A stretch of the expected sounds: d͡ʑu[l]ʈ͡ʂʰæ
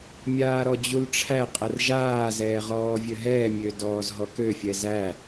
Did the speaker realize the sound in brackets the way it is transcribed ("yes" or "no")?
yes